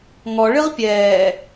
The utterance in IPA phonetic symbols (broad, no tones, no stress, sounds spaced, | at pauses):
ŋ ɔ ɭ ɨ ʁ pʲ ɛː